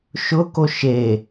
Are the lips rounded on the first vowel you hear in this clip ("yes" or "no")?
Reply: yes